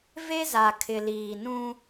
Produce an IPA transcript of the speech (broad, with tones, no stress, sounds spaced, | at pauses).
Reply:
v e˦ z a˨ kʰ ɪ˨ l iː˨ n ũ˦